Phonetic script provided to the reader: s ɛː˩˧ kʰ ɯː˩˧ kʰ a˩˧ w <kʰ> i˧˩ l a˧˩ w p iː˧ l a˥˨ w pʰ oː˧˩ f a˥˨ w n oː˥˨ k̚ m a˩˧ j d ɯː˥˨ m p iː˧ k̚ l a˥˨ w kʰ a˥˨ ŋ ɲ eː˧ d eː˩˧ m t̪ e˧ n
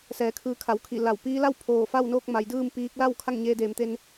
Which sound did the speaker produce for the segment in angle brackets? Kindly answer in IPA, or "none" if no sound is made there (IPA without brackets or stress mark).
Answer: kʰ